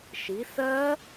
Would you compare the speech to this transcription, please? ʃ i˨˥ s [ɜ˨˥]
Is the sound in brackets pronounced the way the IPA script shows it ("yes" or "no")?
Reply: no